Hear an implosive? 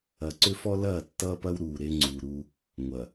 no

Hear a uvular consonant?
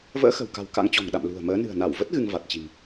no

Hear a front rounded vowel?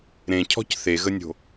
no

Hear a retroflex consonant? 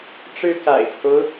yes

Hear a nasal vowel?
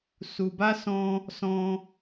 yes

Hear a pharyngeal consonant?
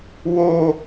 no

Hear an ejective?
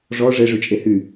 yes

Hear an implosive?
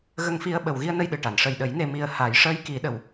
yes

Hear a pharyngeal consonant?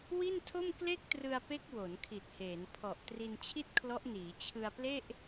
no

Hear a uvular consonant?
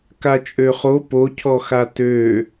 yes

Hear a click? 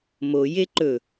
yes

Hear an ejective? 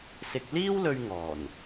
no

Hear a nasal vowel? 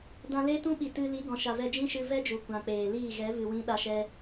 yes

